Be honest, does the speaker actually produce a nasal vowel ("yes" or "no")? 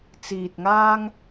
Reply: no